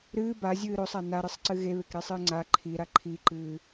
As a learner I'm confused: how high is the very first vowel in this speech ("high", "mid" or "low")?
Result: high